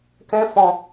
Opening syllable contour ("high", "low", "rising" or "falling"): high